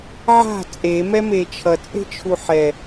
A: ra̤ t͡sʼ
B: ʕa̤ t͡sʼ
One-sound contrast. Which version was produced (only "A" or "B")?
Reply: B